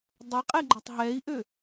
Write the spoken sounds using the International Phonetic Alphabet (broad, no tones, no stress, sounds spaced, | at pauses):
dˤ e qʼ ɛ ɡ͡ǃ ɐ tˤ ɦ ɛ i̯ ʔ ø